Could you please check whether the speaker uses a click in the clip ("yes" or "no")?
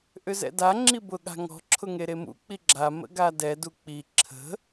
yes